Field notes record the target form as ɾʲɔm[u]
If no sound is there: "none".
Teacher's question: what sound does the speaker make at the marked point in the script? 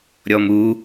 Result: u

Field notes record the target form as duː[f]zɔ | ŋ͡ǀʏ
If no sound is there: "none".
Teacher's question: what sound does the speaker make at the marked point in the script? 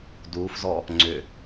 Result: f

